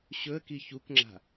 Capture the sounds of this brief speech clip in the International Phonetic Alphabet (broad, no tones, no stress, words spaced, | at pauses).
ɕɵə̯ki çukŋ͡ǁa̤